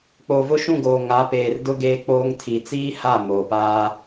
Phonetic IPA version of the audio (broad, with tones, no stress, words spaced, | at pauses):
k͡poː˨vʊ˦ʃũ˦˨ɡoː˨ ŋa˨˦peː˨rdʊ˦ ɡeː˦k͡poː˦ŋ tʰi˨t͡siː˦ha˦˨ moː˨paː˦